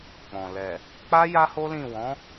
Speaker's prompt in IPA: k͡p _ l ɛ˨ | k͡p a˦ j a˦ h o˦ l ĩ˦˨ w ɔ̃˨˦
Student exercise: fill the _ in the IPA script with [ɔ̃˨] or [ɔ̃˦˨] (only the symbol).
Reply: ɔ̃˨